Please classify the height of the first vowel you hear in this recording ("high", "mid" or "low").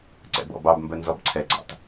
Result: mid